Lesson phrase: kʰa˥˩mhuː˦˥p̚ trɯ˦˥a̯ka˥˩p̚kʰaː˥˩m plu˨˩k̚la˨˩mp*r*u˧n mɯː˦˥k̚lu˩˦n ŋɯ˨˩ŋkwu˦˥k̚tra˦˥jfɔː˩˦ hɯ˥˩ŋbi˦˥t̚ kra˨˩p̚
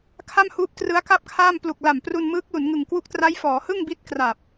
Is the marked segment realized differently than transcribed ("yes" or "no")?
no